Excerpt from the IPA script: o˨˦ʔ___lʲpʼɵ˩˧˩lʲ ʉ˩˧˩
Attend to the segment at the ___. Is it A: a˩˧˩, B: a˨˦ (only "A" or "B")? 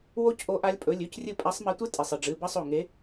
B